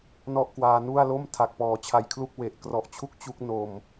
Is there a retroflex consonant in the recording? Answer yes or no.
no